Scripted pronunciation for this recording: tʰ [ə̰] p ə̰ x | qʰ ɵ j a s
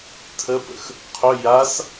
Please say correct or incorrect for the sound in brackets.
incorrect